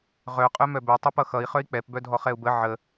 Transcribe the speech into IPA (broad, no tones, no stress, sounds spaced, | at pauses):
ʁ œ qʼ œ m œ b œ tˤ œ p ʌ x ʌ i̯ χ œ i̯ k͡p ɛ p b œ dʱ ɔ χ ɛ u̯ b ə ʕ ə